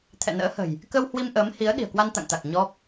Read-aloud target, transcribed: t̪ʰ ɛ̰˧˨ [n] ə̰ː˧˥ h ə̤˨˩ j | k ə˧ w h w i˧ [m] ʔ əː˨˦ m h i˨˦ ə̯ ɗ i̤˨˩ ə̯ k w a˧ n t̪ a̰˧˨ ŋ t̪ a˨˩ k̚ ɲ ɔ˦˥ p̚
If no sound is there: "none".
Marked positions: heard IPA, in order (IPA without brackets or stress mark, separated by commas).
n, m